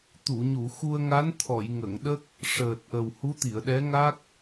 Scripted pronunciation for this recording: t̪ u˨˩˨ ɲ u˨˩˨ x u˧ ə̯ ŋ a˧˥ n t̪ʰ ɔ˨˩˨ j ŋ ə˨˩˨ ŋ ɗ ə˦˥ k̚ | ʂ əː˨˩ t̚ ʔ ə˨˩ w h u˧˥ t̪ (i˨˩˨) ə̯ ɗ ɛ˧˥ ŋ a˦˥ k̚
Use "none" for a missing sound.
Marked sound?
i˨˩˨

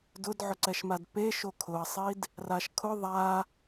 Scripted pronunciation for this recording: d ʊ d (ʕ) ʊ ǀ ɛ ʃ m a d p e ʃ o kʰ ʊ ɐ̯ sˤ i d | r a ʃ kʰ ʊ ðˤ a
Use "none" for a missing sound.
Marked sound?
ʕ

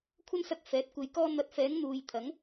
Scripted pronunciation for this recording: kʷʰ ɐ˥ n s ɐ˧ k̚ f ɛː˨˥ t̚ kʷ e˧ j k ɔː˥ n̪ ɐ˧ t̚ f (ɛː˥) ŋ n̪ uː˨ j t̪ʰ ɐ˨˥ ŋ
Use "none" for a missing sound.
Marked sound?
ɛː˨˥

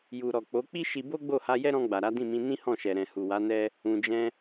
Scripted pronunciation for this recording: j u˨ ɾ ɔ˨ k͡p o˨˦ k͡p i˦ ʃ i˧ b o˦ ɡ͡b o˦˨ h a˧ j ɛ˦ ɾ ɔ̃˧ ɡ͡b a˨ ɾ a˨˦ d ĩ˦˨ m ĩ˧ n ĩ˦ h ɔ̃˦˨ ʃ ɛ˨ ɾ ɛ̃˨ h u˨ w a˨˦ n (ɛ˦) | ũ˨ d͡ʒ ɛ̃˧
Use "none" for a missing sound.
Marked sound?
ɛ˦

